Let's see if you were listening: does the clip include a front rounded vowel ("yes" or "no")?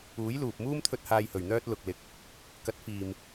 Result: yes